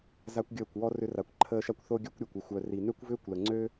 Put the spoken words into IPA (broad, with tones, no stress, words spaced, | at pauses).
za˦kʷɡʲəː˦˨kʷwɔ˦ rʏ˧ra˨kʷǃʰəː˧ʃa˦kʷ θo˦ɡʲœ˦kʷɾʲɔ˨kʷ ʏ˨xʷœ˨ri˨ nø˦kʷvʏː˦kʷlə˨ŋ͡ǀø˦